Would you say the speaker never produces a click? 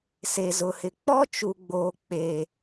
yes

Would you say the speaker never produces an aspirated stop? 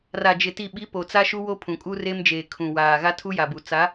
no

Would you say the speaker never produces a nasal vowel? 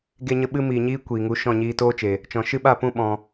no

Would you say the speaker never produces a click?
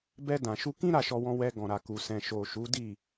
yes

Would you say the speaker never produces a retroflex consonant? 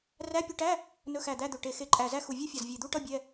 no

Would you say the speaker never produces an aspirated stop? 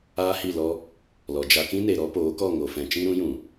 yes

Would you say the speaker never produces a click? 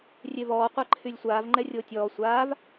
no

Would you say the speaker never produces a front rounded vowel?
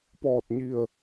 yes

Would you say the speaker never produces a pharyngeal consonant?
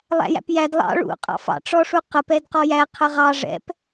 yes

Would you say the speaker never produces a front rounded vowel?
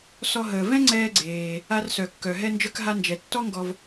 no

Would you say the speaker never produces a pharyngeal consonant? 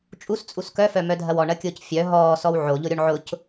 no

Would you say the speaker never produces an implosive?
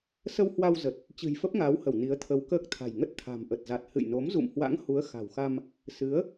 yes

